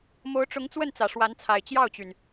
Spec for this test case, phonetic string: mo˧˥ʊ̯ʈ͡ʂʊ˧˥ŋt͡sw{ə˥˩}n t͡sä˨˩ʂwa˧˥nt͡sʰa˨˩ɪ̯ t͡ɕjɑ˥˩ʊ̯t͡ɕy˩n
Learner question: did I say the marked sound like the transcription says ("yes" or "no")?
yes